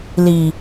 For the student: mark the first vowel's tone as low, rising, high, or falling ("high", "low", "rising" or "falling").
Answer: low